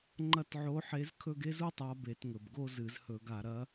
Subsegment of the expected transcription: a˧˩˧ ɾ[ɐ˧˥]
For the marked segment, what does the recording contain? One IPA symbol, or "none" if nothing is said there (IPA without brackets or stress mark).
ɐ˧˥